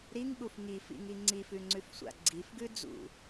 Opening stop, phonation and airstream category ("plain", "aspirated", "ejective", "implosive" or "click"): implosive